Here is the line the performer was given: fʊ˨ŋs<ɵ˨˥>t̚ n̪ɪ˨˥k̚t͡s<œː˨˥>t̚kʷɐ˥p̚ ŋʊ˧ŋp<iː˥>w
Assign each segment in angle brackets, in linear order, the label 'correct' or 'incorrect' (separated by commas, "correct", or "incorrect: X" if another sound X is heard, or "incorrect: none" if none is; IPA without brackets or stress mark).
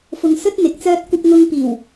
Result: incorrect: ɵ˥, incorrect: œː˥, incorrect: iː˨˩